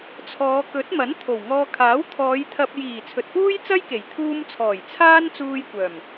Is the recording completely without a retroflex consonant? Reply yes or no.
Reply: yes